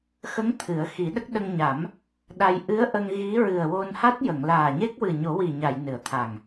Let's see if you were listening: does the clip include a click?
no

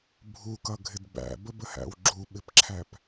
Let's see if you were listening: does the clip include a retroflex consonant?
no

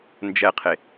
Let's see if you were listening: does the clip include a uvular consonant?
yes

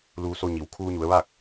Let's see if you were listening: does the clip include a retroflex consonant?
no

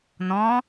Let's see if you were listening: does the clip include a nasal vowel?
yes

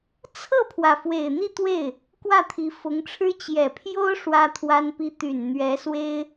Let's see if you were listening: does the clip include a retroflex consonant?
yes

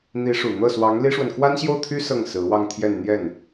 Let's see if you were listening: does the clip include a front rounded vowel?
yes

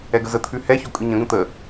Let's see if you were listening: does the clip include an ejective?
yes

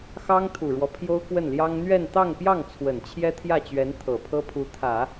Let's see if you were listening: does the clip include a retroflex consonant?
yes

